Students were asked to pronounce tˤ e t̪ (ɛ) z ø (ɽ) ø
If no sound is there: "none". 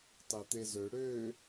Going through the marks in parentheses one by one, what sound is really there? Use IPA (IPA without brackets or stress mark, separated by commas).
e, ɽ